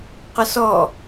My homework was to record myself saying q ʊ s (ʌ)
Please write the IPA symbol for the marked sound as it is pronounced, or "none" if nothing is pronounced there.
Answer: ɔ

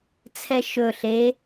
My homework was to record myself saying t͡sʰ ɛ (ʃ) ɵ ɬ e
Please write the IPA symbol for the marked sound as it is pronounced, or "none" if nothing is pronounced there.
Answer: ʃ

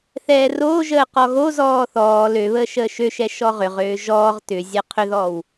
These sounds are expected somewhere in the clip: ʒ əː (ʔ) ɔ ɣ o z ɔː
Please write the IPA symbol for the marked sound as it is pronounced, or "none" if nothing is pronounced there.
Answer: q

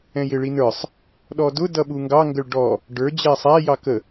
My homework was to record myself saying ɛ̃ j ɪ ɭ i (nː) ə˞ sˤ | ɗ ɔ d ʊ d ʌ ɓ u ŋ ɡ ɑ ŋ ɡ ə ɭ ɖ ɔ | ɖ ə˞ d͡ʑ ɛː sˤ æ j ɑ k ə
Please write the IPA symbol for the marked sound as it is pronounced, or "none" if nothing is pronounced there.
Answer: n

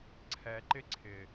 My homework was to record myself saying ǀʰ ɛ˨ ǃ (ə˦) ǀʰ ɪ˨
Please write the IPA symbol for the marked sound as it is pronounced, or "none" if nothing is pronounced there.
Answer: ɪ˦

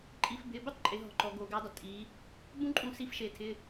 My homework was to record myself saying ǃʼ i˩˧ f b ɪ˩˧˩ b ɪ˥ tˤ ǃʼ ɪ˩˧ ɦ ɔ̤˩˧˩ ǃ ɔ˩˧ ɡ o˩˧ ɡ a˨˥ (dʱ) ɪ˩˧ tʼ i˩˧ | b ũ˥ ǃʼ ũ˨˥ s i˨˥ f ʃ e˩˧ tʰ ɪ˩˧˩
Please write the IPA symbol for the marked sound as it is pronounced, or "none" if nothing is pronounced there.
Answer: dˤ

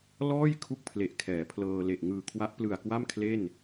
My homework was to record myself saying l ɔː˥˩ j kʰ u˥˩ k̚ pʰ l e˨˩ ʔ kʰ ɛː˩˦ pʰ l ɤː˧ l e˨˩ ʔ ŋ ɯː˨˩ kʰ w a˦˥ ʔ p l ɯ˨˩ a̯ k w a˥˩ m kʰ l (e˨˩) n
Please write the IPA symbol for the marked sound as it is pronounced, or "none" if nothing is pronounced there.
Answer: e˥˩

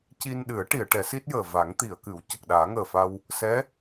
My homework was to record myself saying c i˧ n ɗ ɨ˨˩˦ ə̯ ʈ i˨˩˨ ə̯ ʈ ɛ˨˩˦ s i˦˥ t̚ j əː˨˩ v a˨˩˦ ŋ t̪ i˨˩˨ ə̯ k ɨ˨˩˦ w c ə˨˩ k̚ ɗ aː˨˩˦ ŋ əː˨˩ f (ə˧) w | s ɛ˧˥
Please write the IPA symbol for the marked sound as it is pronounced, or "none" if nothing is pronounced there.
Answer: a˧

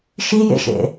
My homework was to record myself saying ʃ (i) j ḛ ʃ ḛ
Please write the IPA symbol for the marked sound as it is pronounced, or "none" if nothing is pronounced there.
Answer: i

